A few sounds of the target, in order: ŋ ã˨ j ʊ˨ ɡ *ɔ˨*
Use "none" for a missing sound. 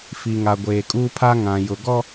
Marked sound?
ɔ˦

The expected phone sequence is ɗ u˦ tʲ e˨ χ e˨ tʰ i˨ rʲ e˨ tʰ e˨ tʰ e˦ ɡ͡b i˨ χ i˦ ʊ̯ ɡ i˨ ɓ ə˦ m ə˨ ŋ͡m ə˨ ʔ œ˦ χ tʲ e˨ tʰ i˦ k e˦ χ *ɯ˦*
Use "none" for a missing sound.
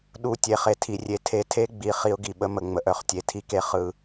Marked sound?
ɯ˦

